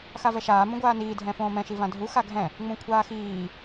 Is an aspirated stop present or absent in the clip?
present